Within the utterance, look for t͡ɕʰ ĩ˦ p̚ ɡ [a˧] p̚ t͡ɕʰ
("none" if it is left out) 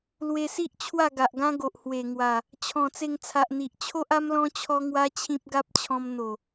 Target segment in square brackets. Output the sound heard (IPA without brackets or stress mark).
a˦